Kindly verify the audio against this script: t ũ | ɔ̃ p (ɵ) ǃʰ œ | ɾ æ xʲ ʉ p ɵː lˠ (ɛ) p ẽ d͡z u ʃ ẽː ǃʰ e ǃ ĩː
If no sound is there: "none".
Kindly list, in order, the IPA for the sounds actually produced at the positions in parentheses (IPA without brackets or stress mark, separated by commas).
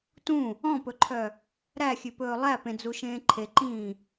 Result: ɵ, æ